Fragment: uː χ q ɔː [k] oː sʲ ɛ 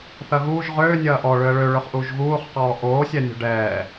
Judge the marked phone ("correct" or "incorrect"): incorrect